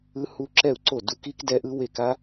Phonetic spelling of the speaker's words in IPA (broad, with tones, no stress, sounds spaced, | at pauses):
ɯ˦˥ h u˦˥ ǁ ɛ˥˩ u̯ ǀ o˥˩ d u˦˥ k i˦˥ k d ɛ˦˥ ʔ ɯ˦˥ w e˥˩ k a˦˥